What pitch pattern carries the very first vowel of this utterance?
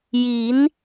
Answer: rising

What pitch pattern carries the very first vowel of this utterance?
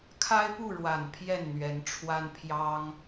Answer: high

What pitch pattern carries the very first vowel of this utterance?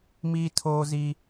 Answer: high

